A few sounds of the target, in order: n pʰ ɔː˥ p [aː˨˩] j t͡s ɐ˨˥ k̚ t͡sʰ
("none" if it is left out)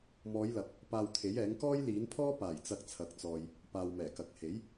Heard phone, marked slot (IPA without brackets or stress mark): aː˨˩